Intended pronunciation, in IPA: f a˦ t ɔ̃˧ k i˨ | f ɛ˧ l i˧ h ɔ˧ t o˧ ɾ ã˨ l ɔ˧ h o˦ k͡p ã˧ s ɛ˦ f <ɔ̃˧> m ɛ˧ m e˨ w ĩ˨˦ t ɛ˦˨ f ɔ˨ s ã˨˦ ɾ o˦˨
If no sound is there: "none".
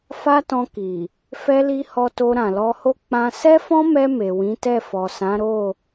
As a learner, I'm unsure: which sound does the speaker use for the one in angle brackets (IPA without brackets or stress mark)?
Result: ɔ̃˦